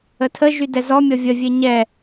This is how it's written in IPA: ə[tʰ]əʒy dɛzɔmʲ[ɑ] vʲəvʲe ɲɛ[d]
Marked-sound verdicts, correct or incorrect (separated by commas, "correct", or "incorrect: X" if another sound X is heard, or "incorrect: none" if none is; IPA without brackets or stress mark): correct, incorrect: ɔ, incorrect: none